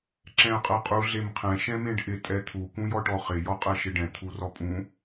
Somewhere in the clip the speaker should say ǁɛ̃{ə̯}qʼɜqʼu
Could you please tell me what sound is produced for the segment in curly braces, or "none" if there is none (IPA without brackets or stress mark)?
ə̯